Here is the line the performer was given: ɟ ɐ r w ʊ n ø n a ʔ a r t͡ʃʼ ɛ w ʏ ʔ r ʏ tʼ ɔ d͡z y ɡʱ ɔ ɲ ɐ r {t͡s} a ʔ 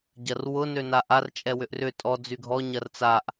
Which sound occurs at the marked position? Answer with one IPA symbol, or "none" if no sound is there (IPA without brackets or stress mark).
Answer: t͡s